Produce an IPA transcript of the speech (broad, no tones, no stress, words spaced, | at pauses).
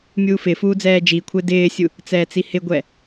mʲuːfɪfuː d͡zɛːd͡ʒikʷʰɪː dɪːsʲu | t͡sɛːt͡sihɪɡʷɛ